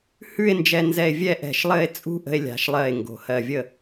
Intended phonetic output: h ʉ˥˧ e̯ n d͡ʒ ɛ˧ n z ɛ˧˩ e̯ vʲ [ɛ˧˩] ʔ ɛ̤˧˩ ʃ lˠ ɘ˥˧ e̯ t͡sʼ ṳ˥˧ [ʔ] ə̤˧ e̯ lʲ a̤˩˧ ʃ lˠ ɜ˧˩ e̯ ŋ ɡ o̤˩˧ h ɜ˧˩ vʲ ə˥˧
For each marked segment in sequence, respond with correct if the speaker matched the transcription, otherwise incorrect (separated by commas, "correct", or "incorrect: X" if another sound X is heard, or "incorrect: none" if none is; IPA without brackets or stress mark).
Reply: incorrect: ɛ˥˧, correct